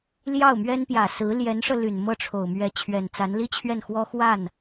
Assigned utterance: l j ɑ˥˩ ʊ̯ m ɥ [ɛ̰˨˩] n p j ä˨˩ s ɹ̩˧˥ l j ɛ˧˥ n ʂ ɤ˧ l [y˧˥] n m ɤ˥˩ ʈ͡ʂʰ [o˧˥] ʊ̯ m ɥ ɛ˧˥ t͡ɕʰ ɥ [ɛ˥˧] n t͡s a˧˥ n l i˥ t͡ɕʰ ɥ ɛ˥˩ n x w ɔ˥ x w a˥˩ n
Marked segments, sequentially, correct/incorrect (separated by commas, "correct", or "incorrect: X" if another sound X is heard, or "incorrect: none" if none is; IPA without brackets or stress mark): incorrect: ɛ˥, incorrect: y˨˩, incorrect: o˨˩, incorrect: ɛ˨˩